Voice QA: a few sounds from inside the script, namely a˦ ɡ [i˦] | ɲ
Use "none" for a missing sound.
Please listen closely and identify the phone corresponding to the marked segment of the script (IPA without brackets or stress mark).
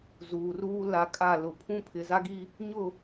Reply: i˦